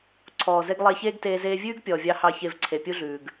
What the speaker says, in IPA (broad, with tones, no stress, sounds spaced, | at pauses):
ǀʰ ɔː˨ z e˧ ɡ lˠ e˧ ç eː˦ ɡ t eː˧ z eː˧ vʲ ʉː˦ ɡ pʲ ɔː˨ vʲ ɑ˧ h ɑ˦˨ ç e˦˨ v ǀʰ e˨ pʲ u˦ ɮ ʉː˨ ɡ